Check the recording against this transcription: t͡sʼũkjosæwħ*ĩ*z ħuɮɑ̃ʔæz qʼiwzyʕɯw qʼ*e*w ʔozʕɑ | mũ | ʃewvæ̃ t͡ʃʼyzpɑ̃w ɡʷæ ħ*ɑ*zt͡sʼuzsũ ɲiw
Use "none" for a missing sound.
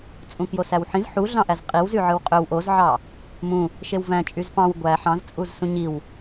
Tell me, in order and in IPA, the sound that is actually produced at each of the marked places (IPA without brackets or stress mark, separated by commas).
ĩ, ø, ɑ̃